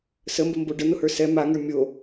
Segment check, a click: absent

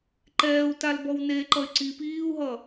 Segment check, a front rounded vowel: present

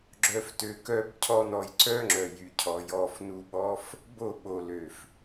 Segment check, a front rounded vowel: present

